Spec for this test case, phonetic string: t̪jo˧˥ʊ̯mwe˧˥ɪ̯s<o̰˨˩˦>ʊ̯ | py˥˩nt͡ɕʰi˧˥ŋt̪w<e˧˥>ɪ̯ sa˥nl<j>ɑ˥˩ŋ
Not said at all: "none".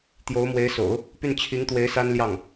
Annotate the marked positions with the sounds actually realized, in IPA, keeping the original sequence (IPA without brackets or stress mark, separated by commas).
o̰˨˩˦, e˧˥, j